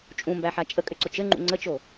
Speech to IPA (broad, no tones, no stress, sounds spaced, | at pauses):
t͡ʃʼ ũ m b æ ħ a t͡ʃʼ ə kʼ ʏ ǀ ʊ t͡ʃ ɘ ŋ͡ǃ ṵ ŋ͡ǀ ə t͡ʃ o